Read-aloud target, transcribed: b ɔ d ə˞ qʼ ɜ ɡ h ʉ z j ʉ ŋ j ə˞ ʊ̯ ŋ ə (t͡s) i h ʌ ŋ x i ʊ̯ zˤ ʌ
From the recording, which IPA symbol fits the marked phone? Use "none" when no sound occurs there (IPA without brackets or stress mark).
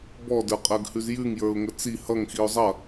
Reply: t͡s